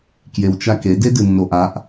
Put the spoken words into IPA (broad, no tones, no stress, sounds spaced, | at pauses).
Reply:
k j e w t͡ʃ a k e d e d ɨ nː o ʔ a ʔ